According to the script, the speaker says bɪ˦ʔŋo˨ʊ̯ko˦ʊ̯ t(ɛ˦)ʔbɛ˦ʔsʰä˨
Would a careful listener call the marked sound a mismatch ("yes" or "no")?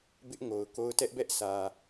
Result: no